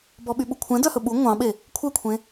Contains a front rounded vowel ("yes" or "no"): yes